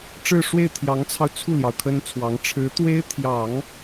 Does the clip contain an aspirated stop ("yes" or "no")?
yes